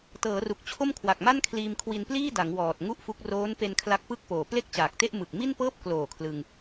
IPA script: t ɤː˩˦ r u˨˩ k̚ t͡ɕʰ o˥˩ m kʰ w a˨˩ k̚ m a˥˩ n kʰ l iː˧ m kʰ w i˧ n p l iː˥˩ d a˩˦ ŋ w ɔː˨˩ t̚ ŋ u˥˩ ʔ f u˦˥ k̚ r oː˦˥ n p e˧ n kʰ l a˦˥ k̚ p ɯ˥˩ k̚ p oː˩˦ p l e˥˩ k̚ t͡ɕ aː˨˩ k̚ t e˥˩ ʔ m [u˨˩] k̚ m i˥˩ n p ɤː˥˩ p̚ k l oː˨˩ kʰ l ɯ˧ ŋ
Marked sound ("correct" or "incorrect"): incorrect